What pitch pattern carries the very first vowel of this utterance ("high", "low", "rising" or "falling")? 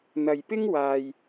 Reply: low